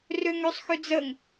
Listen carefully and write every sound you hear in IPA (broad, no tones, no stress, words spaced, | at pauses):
røŋøsˤxø d͡zəŋ